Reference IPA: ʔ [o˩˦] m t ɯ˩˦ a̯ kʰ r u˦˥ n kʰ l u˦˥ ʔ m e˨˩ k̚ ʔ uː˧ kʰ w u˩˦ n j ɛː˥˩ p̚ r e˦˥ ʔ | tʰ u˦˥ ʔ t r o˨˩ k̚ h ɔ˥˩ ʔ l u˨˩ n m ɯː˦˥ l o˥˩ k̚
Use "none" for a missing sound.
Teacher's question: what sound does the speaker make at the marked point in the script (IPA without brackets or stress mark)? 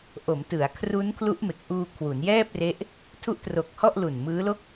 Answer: o˩˦